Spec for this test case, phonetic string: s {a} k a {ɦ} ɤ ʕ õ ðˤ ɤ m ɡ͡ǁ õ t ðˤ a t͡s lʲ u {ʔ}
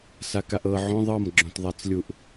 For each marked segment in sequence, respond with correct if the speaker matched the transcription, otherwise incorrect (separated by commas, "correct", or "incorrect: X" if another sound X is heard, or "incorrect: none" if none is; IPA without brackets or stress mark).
correct, incorrect: ʔ, correct